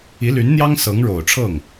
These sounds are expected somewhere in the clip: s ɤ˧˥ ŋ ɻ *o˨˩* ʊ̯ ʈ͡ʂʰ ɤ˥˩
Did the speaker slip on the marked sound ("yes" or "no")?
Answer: no